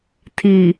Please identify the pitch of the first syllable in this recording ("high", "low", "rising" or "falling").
low